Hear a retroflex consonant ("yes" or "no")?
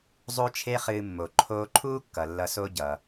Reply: no